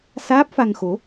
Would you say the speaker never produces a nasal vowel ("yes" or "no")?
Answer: yes